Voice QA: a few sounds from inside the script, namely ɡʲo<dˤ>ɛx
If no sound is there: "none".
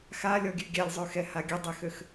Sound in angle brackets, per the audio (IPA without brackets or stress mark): dˤ